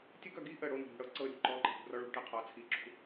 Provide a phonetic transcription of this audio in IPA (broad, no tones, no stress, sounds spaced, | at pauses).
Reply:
tʲ ə ɡ œ ɡ i ʔ ə ɽ o n o̤ ɾ ṳ ɽ ɤ ǀ ɤ ɾʲ o̤ ǃ ɔ ǃ ɛ̤ p ṳ r ɔ ɭ ṳ ʈ ɛ qʰ ɔ t͡sʰ i ǁ ṳ